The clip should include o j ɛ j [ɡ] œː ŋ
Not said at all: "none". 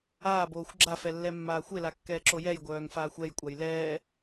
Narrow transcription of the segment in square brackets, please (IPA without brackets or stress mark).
ɡʷ